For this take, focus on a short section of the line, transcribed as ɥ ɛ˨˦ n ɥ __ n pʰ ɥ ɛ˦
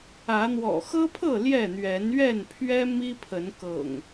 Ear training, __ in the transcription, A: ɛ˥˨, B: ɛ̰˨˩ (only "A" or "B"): A